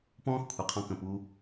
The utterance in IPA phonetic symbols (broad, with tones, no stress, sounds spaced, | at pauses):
p ɔ̃ː˦ x kʷʰ i˨ qʰ ɔ̃˧ k ə̃˨ p u˧